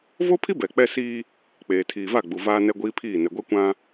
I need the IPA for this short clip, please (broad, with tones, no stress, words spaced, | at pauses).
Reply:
vo˦pʰi˦ bɛ˨k͡pɛ˦siː˦ | k͡peː˨tʰiː˨va˦˨ɡ͡bu˨ vaː˦nɛ˦ɡʷiː˦pʰiː˦˨ nɛ˨ɡʷɛ˦ kʷã˦